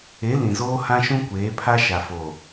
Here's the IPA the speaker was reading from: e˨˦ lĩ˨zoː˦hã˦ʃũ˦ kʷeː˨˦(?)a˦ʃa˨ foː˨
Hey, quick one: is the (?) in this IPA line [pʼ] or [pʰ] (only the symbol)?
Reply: pʰ